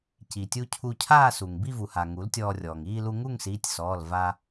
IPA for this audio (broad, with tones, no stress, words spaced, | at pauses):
ci˩tʲu˧ cʰu˧cʰaː˥˧su˩ŋ bi˥˧vu˩ha˩ ŋu˩˥ltʲɔː˧rʲɔː˩ŋ iː˥˧lu˧ ŋu˥˧ŋsiː˩˧˩tʲ sɔː˩˧˩l va˧